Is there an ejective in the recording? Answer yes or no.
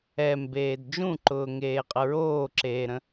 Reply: yes